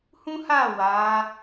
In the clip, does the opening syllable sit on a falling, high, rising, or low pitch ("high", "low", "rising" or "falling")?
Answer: high